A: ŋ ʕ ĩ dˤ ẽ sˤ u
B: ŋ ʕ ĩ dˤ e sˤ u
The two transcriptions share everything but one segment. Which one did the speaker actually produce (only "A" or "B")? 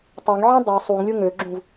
B